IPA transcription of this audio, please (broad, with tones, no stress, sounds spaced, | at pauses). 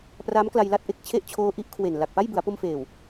p r a˦˥ m k l a˧ j l a˦˥ t̚ ʔ e˨˩ k̚ t͡ɕʰ e˥˩ ʔ t͡ɕʰ oː˦˥ ʔ i˦˥ ʔ kʰ w e˨˩ n l a˨˩ k̚ p a˥˩ j b ɯ˩˦ a̯ p o˧ m f eː˨˩ w